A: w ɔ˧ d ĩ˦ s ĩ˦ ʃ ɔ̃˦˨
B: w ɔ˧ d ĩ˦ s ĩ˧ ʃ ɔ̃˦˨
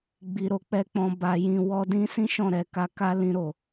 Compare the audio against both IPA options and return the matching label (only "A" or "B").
A